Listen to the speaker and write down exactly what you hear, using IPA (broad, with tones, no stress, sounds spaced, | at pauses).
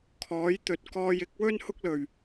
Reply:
kʰ ɔː˨˥ j t̪ ɵ˨˥ t̚ k ɔː˧ j ɪ˨˥ k̚ w ɵ˥ n h ʊ˥ k̚ l ɵ˨˩ ɥ